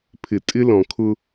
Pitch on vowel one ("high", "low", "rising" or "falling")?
low